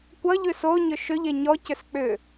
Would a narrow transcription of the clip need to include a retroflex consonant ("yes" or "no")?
no